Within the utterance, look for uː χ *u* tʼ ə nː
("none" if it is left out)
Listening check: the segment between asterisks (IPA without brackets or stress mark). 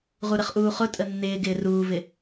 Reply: ʊ